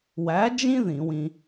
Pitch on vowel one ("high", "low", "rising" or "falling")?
rising